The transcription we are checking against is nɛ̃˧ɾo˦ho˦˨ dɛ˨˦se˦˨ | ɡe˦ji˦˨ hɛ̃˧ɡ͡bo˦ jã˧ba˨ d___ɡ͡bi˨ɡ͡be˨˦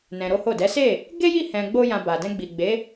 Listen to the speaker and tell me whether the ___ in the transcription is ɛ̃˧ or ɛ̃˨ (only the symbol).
ɛ̃˧